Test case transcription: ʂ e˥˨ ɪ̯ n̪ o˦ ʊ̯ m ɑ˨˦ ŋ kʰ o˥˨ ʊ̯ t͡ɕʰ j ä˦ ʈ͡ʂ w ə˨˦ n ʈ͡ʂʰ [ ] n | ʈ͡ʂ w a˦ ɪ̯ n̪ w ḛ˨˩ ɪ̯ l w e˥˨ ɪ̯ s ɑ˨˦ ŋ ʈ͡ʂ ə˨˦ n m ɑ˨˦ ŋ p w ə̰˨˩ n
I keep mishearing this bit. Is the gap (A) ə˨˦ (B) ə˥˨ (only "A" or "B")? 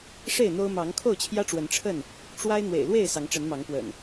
B